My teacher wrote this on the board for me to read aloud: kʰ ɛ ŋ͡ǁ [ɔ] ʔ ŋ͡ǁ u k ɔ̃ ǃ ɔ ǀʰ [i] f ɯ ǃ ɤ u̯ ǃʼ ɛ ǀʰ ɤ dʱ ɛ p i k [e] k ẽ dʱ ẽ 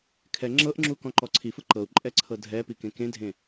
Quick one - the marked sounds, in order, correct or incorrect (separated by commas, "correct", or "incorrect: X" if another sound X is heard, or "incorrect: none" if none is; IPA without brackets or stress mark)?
incorrect: ɤ, correct, incorrect: ẽ